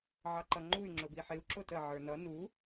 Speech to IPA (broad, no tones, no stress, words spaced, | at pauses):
ʕɑǃʌŋ͡ǃuy̯ ŋ͡ǁʊbiħɪu̯ ǁʊtə ʕə˞nʌ nu